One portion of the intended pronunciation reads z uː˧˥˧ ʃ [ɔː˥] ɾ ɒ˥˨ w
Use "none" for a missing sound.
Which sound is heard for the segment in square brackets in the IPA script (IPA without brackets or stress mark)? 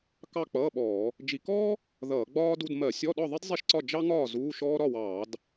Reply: ɔː˥